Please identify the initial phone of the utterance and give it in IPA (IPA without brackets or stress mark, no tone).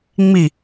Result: ŋ͡m